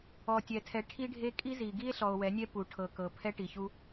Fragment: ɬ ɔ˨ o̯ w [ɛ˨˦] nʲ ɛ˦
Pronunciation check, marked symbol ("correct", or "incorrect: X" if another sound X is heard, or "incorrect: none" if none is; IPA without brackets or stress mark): correct